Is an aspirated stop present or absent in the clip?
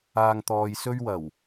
absent